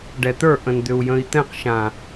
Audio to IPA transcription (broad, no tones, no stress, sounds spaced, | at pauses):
ɖ ɛ t̪ ə˞ ʔ ə̃ n d̪ ʏ u̯ j ə̃ i̯ t̪ ɛ̃ q ʃ ã